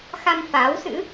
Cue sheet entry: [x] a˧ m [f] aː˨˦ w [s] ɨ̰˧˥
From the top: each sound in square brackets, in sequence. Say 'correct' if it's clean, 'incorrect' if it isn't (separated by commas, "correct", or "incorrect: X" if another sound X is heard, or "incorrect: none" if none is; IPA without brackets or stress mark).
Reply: correct, correct, correct